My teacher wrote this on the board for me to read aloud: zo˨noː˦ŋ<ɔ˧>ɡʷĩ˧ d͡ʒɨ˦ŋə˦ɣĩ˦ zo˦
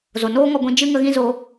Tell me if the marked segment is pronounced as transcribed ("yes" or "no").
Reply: yes